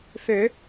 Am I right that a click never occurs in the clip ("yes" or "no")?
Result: yes